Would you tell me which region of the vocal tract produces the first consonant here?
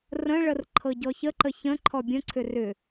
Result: tongue tip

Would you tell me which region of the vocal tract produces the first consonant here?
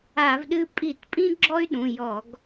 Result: lips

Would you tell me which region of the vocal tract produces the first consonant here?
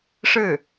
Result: retroflex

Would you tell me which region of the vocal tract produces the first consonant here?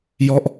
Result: palate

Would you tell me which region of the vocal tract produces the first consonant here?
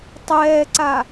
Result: tongue tip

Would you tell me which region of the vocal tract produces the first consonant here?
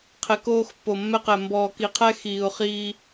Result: uvula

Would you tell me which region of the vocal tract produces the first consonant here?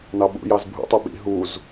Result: tongue tip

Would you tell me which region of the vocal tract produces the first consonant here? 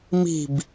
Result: lips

